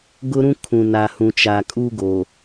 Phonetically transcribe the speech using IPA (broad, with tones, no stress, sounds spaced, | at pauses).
ɡ ʊ˦ ɾ ũ˦ kʰ ũ˨ n a˨ h ũ˨ t͡ʃ a˨ kʼ u˦ ɡ o˨